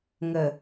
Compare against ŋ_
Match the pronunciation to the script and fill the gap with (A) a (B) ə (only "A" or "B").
B